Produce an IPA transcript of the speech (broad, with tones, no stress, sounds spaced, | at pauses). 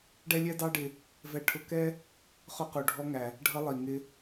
ɖ ɛ˥ lʲ ɛ˥ d ɑ˥ ɖ ɪ˧ | v ɛ˧ ʈʰ ʊ˧ k ɛ˥ | χ ʊ˧ q u˩ ɖʱ ɔ˧ ŋ æ˩ | ɖʱ ʌ˧ lˠ i˩ ŋ ɪ˧